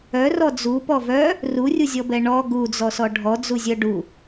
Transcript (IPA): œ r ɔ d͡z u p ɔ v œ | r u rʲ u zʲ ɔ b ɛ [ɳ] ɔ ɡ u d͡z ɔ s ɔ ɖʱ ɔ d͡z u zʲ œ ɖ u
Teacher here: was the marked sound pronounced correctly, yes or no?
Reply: yes